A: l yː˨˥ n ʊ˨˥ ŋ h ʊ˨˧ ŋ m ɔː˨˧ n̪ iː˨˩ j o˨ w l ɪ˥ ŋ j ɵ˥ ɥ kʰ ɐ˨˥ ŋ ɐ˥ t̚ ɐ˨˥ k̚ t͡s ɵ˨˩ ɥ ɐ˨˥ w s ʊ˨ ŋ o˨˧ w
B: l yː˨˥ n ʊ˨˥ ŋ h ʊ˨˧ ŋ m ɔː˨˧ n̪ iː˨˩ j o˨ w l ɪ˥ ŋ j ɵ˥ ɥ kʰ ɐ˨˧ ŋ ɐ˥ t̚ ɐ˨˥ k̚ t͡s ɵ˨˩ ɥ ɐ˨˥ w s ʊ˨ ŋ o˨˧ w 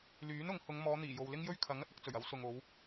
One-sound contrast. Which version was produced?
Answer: A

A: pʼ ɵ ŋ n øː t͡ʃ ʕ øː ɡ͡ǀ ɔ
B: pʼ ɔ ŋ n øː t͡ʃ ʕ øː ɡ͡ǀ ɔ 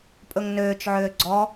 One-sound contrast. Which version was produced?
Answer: A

